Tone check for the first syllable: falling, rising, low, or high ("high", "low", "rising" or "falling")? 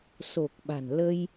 low